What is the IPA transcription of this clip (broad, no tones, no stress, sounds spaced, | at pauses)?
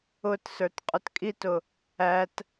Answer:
ʊ t s ə˞ t qʼ ʊ t kʼ i t ʊ | æ t